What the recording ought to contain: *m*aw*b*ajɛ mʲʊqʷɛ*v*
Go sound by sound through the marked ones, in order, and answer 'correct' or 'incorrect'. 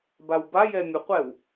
incorrect: b, correct, incorrect: w

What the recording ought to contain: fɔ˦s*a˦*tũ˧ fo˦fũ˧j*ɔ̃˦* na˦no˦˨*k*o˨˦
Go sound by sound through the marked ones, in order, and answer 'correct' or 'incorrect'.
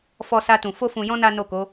correct, correct, correct

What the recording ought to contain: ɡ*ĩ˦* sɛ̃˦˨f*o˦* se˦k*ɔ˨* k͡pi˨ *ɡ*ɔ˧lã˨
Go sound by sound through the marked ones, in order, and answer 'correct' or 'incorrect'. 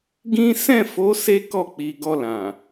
correct, incorrect: o˨˦, incorrect: ɔ˦˨, correct

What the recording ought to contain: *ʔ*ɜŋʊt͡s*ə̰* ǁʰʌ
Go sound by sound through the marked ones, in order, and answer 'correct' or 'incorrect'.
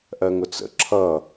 correct, correct

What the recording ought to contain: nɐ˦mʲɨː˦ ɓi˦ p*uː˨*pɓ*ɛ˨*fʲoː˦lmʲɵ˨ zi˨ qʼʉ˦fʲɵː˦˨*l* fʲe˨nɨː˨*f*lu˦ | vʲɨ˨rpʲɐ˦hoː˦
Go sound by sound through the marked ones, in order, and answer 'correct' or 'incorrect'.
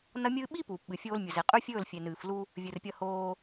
correct, incorrect: ɨ˨, correct, correct

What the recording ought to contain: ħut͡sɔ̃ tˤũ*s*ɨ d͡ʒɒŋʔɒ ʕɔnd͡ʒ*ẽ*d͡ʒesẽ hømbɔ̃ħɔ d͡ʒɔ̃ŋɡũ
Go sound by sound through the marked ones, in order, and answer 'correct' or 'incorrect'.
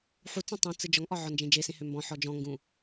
incorrect: t͡s, correct

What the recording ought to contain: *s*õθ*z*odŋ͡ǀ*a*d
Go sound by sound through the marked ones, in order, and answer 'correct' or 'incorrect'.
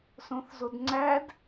correct, correct, incorrect: æ

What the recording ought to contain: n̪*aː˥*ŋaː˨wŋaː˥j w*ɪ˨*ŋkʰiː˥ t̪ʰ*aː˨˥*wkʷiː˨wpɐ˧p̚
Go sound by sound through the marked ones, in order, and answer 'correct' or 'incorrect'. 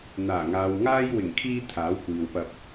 incorrect: aː˨˩, incorrect: ɪ˨˩, correct

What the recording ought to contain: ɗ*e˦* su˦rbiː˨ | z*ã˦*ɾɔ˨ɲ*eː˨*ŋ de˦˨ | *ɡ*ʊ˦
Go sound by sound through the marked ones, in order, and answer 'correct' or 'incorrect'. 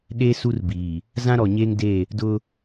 correct, correct, incorrect: eː˦, incorrect: d

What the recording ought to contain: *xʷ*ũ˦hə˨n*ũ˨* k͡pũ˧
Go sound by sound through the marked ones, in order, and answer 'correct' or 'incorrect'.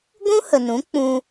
incorrect: ɡʷ, incorrect: ũ˨˦

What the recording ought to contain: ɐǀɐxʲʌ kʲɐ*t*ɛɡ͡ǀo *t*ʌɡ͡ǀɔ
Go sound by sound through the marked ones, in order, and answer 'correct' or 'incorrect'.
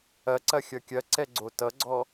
incorrect: ǀ, correct

